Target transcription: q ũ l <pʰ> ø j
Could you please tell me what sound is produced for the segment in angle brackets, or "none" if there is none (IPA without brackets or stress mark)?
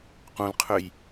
qʰ